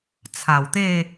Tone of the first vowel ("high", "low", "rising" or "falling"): low